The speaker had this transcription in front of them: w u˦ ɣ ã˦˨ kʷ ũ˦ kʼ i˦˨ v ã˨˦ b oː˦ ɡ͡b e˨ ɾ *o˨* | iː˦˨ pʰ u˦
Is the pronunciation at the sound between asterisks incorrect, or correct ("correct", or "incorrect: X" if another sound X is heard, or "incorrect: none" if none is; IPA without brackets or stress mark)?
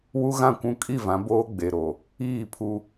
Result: correct